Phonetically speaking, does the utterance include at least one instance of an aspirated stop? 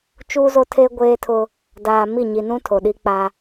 yes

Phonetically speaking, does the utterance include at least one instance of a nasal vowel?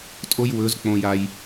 yes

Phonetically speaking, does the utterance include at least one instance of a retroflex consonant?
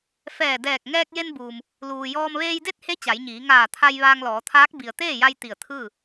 no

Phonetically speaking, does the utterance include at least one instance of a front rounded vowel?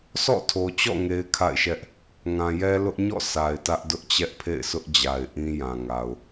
no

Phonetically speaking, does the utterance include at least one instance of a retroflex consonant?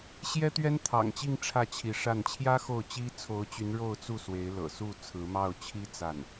yes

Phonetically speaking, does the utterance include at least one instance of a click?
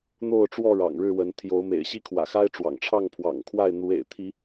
no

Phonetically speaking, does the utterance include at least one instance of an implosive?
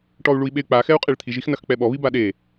yes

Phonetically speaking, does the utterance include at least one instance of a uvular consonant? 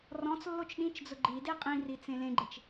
yes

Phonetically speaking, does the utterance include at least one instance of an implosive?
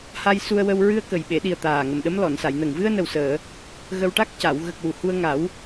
yes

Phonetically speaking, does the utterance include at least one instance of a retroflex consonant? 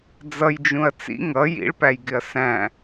yes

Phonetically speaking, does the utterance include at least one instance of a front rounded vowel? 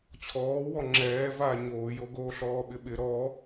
no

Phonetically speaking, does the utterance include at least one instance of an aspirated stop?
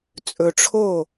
yes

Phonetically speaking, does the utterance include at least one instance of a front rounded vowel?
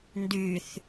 yes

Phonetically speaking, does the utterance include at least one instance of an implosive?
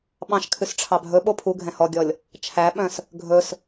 yes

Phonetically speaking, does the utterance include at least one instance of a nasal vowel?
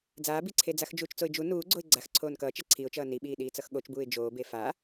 no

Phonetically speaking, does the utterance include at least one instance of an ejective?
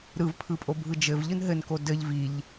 yes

